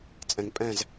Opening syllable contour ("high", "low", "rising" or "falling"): low